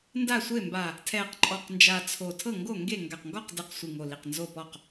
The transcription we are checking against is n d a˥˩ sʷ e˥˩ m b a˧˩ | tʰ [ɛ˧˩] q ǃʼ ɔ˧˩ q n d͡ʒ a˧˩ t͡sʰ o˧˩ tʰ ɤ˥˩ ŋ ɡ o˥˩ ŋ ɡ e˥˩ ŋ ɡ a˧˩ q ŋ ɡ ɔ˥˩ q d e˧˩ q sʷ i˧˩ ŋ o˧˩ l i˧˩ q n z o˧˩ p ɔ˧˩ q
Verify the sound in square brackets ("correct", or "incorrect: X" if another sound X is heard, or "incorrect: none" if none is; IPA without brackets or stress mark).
correct